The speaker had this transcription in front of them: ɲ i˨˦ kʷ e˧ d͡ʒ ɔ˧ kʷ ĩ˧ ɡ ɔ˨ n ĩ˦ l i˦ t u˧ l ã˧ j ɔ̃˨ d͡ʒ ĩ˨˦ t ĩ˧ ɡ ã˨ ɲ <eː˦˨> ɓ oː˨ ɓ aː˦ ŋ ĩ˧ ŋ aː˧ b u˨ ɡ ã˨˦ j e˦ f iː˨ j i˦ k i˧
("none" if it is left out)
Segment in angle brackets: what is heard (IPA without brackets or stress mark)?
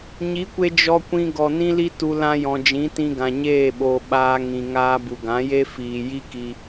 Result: eː˦˨